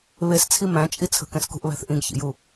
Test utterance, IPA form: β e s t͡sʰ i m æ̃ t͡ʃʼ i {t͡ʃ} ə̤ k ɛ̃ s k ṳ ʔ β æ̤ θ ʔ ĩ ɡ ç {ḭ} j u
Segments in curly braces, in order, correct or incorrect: incorrect, correct

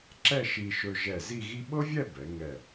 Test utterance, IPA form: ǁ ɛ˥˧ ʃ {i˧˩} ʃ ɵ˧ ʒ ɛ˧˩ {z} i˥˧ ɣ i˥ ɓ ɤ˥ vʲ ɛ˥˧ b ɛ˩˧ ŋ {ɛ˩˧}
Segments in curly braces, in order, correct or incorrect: incorrect, correct, incorrect

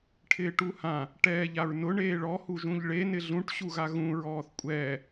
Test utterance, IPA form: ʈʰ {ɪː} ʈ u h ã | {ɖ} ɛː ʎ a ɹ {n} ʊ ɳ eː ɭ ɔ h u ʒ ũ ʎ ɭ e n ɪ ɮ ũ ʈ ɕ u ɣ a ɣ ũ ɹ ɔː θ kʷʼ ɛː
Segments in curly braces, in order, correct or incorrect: correct, incorrect, correct

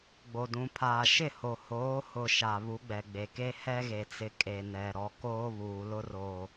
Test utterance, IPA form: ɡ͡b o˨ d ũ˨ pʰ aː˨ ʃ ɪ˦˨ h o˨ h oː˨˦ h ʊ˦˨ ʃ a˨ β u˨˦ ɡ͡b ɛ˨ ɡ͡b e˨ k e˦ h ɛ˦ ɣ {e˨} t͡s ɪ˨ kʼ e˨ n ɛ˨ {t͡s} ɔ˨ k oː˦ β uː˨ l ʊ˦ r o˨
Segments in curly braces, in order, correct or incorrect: correct, incorrect

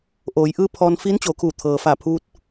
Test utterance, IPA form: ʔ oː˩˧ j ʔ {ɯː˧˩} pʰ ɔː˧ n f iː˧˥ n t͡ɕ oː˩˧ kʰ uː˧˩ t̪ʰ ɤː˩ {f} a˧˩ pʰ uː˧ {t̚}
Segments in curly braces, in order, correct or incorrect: incorrect, correct, correct

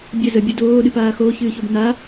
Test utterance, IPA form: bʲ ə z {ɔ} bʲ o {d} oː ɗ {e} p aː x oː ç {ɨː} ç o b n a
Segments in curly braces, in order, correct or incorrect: incorrect, correct, incorrect, correct

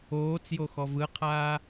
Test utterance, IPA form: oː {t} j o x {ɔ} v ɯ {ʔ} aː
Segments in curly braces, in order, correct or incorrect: incorrect, correct, incorrect

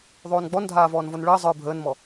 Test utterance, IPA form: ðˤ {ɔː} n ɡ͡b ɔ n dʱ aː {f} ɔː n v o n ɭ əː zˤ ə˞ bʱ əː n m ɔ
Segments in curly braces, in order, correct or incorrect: incorrect, incorrect

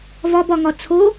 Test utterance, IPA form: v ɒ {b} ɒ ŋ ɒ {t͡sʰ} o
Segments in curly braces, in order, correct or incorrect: correct, correct

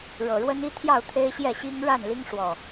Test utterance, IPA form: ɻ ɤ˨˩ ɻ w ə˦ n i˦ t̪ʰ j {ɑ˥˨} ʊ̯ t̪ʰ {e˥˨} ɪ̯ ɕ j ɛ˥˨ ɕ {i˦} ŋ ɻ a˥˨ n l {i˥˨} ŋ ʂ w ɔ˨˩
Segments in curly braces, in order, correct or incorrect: correct, incorrect, correct, incorrect

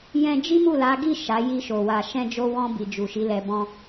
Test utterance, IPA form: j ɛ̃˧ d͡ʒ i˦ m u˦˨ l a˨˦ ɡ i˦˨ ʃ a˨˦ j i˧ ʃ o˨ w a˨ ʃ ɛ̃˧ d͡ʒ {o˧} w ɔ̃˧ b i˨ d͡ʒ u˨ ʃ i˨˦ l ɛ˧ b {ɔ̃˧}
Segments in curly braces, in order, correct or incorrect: correct, incorrect

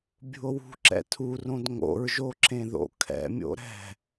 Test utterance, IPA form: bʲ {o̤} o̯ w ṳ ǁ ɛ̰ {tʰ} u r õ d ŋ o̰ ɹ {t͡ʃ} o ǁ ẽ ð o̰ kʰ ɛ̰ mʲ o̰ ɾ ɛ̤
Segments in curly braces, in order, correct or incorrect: incorrect, correct, incorrect

